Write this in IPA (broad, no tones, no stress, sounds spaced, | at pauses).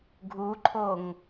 ɡʱ u ǃʰ o ŋ